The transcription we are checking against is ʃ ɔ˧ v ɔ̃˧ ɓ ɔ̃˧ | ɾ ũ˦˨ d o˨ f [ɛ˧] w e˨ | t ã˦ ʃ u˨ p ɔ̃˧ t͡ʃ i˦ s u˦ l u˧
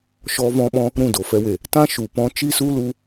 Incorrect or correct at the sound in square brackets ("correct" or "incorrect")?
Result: correct